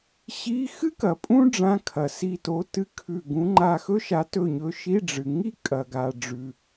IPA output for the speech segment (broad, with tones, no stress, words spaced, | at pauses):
ɕi˧˥˧ xɨ˥kɐ˨ pʼũ˥ ɖ͡ʐã˧˥˧kʰɐ˨si˦˨to˧˥ tɨ˧˥˧kʰʉ˦˨ ɡũ˧˥ŋ͡ǃa˦˨ xɵ˥ʃa˧˥tɵ˦˨ɲɵ˧˥ ʃi˧˥˧ɖ͡ʐɨ˨ ŋi˥ kʼɐ˨ɡa˨ ɖ͡ʐʉ˨